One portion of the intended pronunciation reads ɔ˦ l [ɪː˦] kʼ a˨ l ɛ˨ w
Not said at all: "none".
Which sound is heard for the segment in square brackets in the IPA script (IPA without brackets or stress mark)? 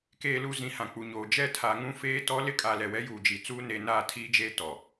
ɪ˦